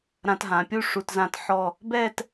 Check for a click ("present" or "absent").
absent